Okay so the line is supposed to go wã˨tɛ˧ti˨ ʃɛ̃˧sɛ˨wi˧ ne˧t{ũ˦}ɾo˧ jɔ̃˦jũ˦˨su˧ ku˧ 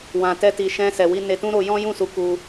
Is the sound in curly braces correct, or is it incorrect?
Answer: correct